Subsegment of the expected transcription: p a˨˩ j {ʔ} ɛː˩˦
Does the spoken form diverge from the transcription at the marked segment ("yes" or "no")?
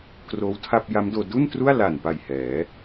yes